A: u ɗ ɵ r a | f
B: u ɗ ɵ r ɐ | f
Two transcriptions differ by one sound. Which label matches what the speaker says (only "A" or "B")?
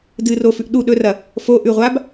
B